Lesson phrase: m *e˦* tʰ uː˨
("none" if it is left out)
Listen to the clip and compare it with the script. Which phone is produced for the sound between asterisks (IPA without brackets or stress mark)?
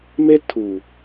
e˦